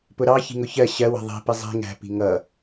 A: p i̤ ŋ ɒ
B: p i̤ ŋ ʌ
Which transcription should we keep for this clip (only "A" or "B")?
B